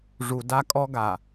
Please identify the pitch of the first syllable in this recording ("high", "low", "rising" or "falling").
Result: low